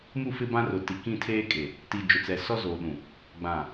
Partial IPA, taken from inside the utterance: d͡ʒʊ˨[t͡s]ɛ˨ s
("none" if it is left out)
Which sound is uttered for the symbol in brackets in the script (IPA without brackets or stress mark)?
t͡s